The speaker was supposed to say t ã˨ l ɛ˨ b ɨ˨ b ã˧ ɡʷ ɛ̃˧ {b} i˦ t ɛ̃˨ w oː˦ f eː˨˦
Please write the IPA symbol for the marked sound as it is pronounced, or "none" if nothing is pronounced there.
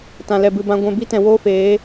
b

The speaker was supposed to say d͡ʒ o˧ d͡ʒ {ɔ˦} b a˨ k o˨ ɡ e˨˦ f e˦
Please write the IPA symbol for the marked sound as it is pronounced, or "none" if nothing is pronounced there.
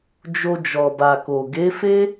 ɔ˨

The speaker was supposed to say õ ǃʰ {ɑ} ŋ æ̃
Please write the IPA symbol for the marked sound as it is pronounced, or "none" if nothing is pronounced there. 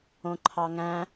ɑ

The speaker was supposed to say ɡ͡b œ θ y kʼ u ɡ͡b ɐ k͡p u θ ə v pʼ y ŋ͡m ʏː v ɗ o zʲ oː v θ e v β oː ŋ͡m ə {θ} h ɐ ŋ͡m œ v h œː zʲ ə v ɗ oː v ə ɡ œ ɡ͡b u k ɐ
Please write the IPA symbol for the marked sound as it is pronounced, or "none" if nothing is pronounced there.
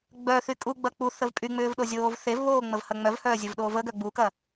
v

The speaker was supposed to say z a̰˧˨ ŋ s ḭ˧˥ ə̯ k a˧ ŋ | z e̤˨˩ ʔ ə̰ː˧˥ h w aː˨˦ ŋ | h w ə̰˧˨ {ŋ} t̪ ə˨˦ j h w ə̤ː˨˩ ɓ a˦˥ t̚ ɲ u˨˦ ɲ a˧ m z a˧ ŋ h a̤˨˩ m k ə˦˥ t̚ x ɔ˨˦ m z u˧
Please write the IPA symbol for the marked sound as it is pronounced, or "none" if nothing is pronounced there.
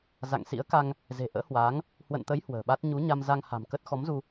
n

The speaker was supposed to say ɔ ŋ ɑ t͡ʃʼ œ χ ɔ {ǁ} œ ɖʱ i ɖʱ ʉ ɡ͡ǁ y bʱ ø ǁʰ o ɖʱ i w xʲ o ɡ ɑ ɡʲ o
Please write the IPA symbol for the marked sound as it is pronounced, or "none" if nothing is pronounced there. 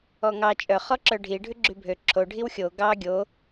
ǁ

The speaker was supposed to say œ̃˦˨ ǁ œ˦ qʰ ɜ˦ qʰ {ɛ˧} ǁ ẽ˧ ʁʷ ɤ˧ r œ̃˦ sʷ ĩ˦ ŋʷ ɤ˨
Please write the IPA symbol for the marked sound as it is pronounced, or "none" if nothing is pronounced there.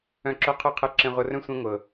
ɛ˧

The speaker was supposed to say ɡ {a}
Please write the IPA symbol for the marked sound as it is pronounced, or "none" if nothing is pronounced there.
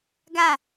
a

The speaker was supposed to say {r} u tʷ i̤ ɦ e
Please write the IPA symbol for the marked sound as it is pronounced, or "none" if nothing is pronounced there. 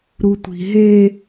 ɾ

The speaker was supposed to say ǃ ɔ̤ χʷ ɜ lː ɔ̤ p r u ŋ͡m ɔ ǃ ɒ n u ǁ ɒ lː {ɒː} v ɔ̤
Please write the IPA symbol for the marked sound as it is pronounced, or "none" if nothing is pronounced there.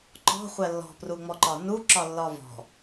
ɒ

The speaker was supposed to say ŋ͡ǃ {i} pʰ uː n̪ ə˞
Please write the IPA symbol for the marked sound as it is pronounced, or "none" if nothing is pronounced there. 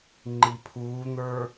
i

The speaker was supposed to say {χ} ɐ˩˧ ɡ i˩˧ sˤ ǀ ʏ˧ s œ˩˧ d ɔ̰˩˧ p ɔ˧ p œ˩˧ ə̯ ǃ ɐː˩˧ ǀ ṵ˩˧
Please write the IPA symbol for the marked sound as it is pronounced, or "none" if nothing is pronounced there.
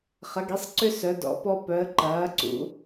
χ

